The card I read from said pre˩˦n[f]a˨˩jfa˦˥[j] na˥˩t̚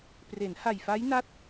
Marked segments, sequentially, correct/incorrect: incorrect: h, correct

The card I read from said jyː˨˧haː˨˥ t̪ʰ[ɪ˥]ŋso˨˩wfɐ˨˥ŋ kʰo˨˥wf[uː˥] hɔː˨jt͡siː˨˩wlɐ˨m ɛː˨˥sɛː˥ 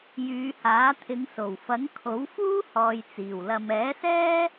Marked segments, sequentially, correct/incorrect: incorrect: ɪ˨˧, correct

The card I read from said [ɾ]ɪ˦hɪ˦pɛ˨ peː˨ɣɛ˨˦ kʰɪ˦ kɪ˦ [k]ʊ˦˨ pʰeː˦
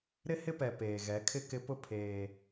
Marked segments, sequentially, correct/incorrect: correct, incorrect: p

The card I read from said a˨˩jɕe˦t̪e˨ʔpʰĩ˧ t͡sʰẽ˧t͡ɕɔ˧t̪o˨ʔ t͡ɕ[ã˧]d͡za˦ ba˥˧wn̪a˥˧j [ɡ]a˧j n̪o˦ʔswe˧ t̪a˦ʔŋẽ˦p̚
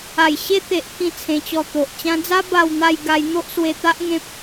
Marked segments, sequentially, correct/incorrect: correct, correct

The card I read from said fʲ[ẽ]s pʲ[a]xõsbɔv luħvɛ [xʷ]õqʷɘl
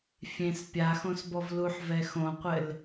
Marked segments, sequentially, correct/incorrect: correct, correct, incorrect: x

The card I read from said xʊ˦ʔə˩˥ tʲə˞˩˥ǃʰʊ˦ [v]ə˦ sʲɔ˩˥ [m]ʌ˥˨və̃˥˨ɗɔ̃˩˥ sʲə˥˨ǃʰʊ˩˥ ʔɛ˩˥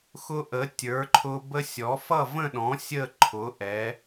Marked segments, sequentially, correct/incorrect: incorrect: b, incorrect: f

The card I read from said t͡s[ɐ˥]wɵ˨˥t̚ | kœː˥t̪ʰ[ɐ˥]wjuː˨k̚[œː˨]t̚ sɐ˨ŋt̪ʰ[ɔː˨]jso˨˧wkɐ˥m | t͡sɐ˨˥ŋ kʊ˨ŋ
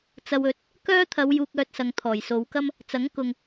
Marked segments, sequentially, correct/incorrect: incorrect: ɐ˧, incorrect: ɐ˨˧, correct, incorrect: ɔː˨˩

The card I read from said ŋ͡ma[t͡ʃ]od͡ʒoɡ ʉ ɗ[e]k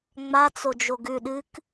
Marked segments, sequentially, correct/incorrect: incorrect: t͡s, incorrect: ɨ

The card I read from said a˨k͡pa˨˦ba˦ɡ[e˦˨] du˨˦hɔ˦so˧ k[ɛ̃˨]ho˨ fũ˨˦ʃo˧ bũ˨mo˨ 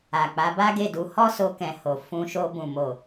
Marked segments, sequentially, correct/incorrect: correct, correct

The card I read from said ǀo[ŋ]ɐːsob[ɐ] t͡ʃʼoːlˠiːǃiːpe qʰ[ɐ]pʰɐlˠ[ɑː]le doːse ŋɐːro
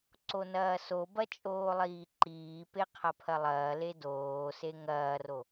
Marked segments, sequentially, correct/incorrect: incorrect: n, correct, correct, incorrect: ɐː

